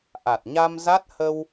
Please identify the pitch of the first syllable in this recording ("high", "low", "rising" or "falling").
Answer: low